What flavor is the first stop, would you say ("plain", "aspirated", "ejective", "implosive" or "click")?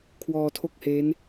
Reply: aspirated